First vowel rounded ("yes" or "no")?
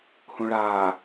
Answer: yes